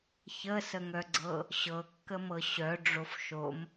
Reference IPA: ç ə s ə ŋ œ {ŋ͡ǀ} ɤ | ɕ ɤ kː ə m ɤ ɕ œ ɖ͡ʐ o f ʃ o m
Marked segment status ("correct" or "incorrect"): incorrect